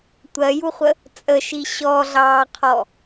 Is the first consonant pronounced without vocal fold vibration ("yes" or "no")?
yes